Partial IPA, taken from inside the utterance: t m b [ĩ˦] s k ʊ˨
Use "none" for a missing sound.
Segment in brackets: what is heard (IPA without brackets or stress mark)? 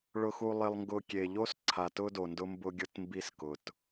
i˦